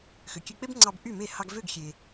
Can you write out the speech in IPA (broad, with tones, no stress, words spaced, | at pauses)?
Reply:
xø˩kʲø˧k͡pe˥bŋ͡ǀɑ˧b ʔy˥˩me˥˩ hɑ˧ɡvø˥˩ɡxʲe˩